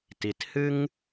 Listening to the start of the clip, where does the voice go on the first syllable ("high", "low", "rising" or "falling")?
low